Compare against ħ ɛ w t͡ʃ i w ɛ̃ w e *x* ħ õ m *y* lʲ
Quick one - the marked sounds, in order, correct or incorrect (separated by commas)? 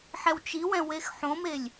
correct, incorrect